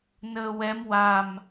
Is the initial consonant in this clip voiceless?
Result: no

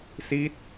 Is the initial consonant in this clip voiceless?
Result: yes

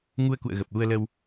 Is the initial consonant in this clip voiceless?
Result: no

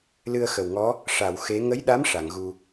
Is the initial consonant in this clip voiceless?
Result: no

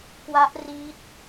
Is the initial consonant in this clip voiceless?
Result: yes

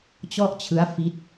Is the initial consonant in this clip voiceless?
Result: yes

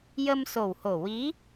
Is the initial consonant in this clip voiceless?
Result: no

